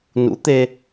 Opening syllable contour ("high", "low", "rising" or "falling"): rising